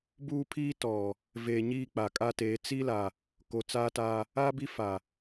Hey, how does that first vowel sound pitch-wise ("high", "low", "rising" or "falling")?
high